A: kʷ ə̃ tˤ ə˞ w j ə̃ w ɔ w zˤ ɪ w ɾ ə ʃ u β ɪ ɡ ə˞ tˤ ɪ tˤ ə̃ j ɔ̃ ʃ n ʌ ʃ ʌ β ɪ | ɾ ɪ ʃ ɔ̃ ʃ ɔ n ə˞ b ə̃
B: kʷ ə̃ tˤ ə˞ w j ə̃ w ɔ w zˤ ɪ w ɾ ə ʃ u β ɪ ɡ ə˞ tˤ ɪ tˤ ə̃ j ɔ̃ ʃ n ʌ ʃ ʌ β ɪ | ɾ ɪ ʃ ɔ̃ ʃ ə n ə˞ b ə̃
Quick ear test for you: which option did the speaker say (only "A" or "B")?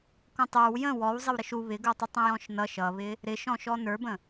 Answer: A